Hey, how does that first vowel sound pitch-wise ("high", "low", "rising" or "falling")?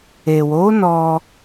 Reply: low